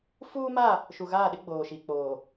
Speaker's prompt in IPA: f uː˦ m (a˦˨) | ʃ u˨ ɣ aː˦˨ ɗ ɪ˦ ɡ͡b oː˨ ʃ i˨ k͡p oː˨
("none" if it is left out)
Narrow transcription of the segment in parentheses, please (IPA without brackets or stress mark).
a˦˨